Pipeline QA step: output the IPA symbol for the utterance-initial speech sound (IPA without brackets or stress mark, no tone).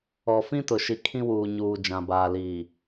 ɔ